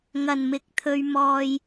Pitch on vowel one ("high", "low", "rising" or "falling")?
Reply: low